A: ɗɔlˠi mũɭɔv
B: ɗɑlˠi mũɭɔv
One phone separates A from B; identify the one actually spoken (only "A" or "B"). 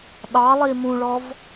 B